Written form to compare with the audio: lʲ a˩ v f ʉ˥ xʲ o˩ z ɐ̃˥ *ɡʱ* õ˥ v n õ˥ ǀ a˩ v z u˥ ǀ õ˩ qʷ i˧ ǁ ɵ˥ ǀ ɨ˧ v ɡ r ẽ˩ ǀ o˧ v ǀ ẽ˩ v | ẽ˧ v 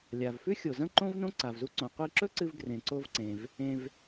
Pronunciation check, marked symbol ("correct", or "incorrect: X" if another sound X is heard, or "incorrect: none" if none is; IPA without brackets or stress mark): incorrect: ǃ